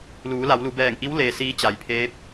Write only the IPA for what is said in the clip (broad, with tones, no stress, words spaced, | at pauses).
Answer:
luː˩˧la˩˧wlu˩˧ bɛː˧˩ŋʔi˧˥w leː˧siː˧˥t͡ɕa˩˧jpʰeː˧˥p̚